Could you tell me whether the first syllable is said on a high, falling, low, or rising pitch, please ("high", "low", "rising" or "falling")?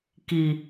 low